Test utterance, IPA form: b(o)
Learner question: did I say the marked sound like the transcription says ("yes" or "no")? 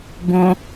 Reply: no